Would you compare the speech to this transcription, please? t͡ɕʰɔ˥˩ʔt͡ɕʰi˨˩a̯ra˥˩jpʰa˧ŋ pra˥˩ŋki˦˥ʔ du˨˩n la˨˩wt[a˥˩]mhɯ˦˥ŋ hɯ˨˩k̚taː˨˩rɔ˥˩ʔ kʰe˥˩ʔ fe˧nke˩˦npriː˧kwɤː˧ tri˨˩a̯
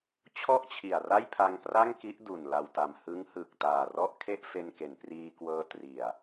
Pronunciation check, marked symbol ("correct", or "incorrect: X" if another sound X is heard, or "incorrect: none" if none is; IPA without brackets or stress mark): incorrect: a˨˩